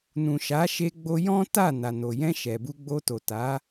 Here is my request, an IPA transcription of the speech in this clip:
n ũ˨ ʃ a˨˦ ʃ e˧ ɡ͡b o˧ j ɔ̃˦ t a˦˨ n a˨ n o˨ j ɛ̃˧ ʃ ɛ˨ b u˧ ɡ͡b o˧ t o˨ t a˨˦

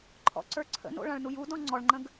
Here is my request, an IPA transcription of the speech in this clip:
ǃʰ ɔ̰ ǀ ə˞ ǀʰ ə̰ n o̰ ɭ ã ɭ n u j u d ɔ̃ ŋ͡ǀ ɔ ɭ ŋ͡ǃ ə̃ ɡ

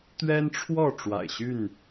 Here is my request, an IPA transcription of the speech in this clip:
t̪ ɥ ɛ˦ n ʈ͡ʂʰ w ɔ˥˨ ʈ͡ʂ w a̰˨˩ ɪ̯ ɕ y˥˨ n

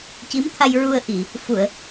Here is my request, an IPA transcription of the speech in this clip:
c i˧˥ m t̪ʰ a˧ j ɹ u˧ ə̯ ʔ i˨˩˨ | f u˨˩˨ ə̯

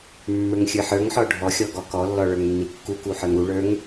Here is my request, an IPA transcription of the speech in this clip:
mː ə˞ ŋ xʲ ə˞ ħ ə˞ ŋ ħ ɔ ɖʱ ɔ xʲ ɔ ɡ ɔ k ɔ lː ɔ ɭ ə˞ ŋ nː i kː u k u ħ ə˞ ŋ u ɭ ə˞ ŋ

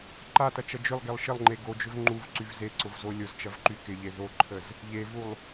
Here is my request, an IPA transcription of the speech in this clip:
ǃ a t ɐ t͡ʃ ɐ d͡ʒ ʏ lˠ ɡ e lˠ ʃ ɪ lˠ ŋ͡ǃ e ɡ o d͡ʒ ʏ v ŋ͡ǃ u v ǀ y v z e ǀ ʊ v z o lʲ ʊ z t͡ʃ ɐ v ǃ y k ɪ ʎ e ð o ǃʰ ə z | ʎ e v u lˠ

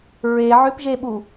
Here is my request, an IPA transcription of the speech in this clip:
ɹ e ʕ ʏ p ʒ e ɓ u

